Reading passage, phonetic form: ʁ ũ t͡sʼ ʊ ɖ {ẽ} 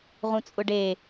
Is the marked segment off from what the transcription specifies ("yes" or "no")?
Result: yes